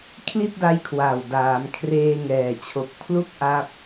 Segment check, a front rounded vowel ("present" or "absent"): absent